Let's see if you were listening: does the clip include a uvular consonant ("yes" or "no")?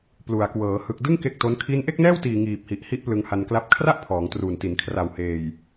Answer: no